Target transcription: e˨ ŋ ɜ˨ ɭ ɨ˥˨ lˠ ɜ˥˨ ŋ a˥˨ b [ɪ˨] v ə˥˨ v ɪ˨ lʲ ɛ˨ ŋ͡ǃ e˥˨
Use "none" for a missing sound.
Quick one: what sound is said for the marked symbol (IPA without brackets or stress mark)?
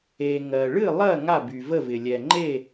y˨